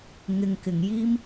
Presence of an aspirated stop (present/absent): absent